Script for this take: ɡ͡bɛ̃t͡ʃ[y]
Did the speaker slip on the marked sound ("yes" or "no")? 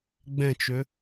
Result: yes